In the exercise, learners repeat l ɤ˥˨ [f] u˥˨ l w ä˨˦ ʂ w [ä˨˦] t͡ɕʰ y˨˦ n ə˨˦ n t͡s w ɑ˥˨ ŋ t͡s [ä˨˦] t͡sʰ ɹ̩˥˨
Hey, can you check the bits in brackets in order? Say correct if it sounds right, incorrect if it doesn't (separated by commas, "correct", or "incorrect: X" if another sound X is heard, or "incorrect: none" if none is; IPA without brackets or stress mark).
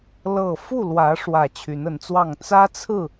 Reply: correct, incorrect: ä˨˩, incorrect: ä˦